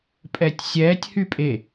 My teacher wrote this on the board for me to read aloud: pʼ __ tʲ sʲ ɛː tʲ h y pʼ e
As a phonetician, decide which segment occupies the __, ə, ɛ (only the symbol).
ɛ